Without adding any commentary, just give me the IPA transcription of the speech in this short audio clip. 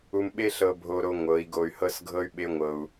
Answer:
u˧ m ɓ e˦ ɬ ɤ˧ bʱ o˧ ɾ o˧ ŋʷ ɤ˨˦ i̯ ɡ o˧ y̯ h ɤ˦ s ɡʱ ɤ˦ y̯ ɓ e˦ ŋʷ ɤ˧ u̯

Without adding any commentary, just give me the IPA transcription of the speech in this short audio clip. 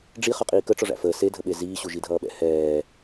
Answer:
ɖ͡ʐ i χ ʌ qʼ iː k ə ʈ͡ʂ ɔ ʐ æ̰ f əː s e dʱ ə ɓ e z iː ɕ u ʒ i dʱ ʌː ɓ ɛ̰ h ɛː

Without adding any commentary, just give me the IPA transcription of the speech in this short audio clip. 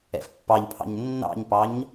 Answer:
ɛ̰ f pː ɑ ʎ pʰ ɑ̰ ɲ nː ɑ̰ ɲ p ɑ ɲ

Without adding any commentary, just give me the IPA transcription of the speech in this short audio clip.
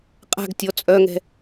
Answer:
qʼ a̤ ɡ tʲ ɔ t͡sʼ œ ŋ ɛ̤

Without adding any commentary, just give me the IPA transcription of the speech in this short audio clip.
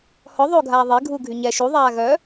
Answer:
h ɔ ðˤ oː ɡʱ aː ðˤ e ɡʱ uː ɡʱ y ɲ ɛ ʃ u ðˤ aː ɣ œ

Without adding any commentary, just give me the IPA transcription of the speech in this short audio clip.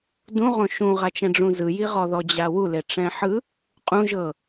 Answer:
d ũ ʁ õ ʃ ũ ʁ a t͡ʃ ɛ̃ ɖ͡ʐ ũ z ɯ j i ʁ ɔ ð ɔ d͡ʑ a w u l e ʈ͡ʂ ɛ̃ ħ ɯ | qʼ ũ ʒ ɤ

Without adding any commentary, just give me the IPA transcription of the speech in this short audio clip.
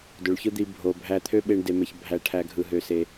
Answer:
d ø˨ ɭ ç ɯ˦ d̪ i˧ bʱ o˨ bʱ æ˧ t̪ʰ ø˦ ɓ e˦ ɳ d e˧ m e˧ ç bʱ æ˦ ʈʰ æ˦ ɡʱ ɯ˧ ɦ ø˧ s e˧

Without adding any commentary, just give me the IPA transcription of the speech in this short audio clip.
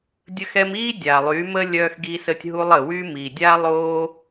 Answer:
dʲ ə˧ x ɛ˧ m iː˦ dʲ a˨ lˠ y˨˦ m ə˦ lʲ œː˧ x ɡ iː˧ s ə˧ tʲ ɦ u˧ lˠ ə˨ w y˧ m i˨ dʲ a˦ lˠ oː˦

